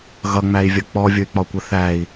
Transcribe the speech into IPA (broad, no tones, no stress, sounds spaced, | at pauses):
ɣ ʌ ŋ͡m æ i̯ vʲ ʌ k͡p ɔ vʲ ʊ y̯ k͡p ɒ kʷ ə θ æ i̯